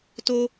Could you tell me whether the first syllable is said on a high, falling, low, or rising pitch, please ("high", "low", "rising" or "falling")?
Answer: high